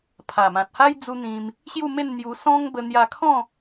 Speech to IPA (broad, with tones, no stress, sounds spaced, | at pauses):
pʰ a˨˩ m ã˨ t̚ h a˦ j d͡z u˦ n̪ ĩ˧ m | ɕ j u˥˧ m e˥˧ n n̪ j u˧ s ɔ̃˦ ŋ b ə˧ n̪ j a˧ kʰ ɔ̃˥˧